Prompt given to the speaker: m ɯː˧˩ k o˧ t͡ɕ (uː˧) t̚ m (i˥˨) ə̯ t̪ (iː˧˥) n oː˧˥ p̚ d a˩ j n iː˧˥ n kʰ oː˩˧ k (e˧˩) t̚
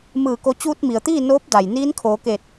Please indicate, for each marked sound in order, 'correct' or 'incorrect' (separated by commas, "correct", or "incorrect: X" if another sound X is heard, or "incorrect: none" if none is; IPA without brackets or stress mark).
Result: correct, incorrect: i˩, incorrect: iː˥˨, correct